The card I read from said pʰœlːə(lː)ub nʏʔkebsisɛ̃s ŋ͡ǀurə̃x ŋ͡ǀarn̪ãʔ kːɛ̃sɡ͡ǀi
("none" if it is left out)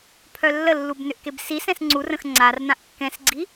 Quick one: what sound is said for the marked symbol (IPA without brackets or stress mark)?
lː